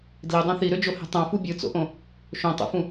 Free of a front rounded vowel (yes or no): no